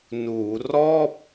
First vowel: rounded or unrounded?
rounded